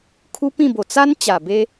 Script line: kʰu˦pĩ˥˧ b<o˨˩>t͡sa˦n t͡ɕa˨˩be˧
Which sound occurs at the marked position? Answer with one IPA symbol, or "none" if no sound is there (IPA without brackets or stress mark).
o˨˩